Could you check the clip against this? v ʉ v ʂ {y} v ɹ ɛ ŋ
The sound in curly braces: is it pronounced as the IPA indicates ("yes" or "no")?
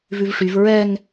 yes